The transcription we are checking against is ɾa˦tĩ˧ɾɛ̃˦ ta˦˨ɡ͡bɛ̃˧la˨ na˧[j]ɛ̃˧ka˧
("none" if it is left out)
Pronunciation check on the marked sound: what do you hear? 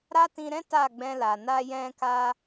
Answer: j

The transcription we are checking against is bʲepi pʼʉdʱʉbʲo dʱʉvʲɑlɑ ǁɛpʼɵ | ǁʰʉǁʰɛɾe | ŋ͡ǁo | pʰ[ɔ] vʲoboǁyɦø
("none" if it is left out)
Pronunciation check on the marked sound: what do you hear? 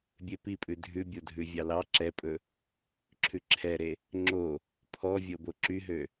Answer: ɔ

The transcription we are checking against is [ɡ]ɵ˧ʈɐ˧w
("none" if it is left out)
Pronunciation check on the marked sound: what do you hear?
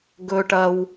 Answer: ɡ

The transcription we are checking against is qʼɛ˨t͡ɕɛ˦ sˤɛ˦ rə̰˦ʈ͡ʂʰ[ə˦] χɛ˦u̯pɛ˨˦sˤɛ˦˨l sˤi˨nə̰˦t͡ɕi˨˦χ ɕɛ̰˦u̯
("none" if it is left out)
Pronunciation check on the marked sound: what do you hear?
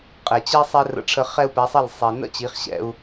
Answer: ə˦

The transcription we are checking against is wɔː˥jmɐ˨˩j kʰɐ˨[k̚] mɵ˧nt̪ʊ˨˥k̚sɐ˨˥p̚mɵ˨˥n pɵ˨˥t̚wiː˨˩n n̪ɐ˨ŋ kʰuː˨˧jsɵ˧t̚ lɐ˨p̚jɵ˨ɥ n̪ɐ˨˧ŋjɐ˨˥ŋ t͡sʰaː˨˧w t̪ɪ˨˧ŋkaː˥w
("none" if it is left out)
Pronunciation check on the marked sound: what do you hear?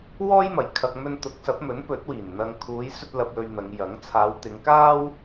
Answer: k̚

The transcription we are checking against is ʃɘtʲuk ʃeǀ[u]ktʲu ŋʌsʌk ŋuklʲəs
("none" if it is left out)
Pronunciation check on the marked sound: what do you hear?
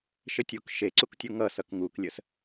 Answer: u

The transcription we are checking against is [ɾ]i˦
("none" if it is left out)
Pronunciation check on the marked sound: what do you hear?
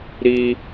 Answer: ɾ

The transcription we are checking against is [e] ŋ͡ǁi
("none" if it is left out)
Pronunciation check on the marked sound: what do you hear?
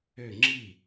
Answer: ø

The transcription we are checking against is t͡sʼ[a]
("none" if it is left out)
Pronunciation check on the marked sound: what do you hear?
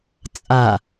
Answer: a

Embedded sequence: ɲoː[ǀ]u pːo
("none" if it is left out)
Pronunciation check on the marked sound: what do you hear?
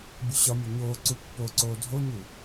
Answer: ǀ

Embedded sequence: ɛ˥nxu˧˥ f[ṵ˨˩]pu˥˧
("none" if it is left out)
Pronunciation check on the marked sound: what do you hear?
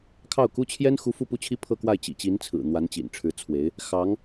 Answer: u˥˧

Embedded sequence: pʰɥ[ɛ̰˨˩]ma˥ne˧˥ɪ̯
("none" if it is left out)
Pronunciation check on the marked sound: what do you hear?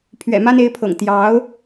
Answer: ɛ̰˨˩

